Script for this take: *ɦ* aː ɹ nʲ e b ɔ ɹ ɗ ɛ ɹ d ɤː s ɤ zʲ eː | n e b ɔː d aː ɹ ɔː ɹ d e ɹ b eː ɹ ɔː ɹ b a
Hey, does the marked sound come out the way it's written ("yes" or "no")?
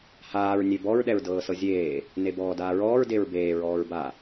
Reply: no